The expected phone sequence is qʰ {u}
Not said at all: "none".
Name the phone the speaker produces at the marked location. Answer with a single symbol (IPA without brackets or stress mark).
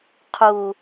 u